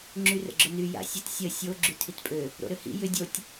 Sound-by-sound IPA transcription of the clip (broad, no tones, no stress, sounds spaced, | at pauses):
ŋ͡ǁ y r ə̰ ɡ͡ǁ ʊ n y j a̰ sʲ ə t sʲ ə sʲ o ɡ͡ǁ y tʰ i t pʼ ø | ɾ o̰ ɾ ø h ḭ j ʏ dʲ o tʲ